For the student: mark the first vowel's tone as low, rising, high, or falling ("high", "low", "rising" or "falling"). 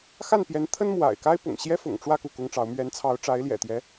falling